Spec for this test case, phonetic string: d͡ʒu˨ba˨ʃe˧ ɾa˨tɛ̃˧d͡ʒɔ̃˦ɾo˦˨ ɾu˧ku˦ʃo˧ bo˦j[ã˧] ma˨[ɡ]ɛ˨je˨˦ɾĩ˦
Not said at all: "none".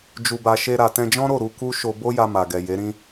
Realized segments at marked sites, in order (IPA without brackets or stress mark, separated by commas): a˧, ɡ